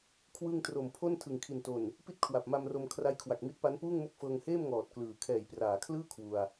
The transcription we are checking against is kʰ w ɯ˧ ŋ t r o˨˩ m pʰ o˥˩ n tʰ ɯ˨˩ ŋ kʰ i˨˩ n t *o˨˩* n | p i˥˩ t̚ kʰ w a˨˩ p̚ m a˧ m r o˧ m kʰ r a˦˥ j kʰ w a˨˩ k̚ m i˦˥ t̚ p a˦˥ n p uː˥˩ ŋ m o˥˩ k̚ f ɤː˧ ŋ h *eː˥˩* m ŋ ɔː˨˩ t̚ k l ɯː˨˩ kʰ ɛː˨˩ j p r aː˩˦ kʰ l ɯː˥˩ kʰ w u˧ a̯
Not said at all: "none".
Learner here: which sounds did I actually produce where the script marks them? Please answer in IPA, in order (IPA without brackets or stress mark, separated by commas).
o˨˩, eː˥˩